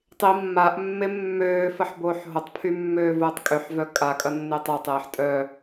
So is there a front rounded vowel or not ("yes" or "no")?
yes